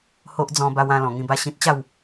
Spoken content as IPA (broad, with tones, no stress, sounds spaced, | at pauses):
h o˦ ʔ d͡z ɔ̃˧ b a˧ w ã˧ l ɔ̃˨˩ ŋ ĩ˧ b a˥˧ ɕ ĩ˦ t̚ t͡ɕ a˥˧ w